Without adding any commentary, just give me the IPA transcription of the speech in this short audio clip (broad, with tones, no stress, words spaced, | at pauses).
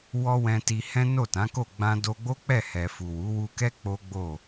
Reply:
wɔ˦wɛ̃˧ ti˧hɛ̃˦ no˦˨tã˨˦ko˦˨ ɡ͡bã˧do˧ɡ͡bo˦ k͡pɛ˦˨hɛ˨fu˨ wu˨˦wu˧kɛ˦ k͡po˦ɡ͡bo˦˨